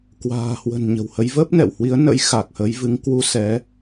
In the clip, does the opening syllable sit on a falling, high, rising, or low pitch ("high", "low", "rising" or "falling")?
low